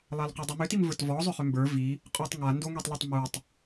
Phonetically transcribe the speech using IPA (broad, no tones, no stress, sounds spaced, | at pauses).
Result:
lˠ a l q u dˤ ʏ m ʏ t i m v ə˞ t v ɔ zˤ ʏ χ ʏ m b ə˞ v i | qʼ o tˤ ŋ a n d o ŋ i tˤ lˠ i tˤ m u tˤ